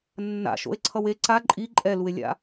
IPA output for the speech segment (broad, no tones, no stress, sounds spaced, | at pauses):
nː a̰ ʃ o̰ e̯ ǀʰ ʌ w e ǀ a ǃʼ i ǃʼ ɛ l u e̯ lʲ a̰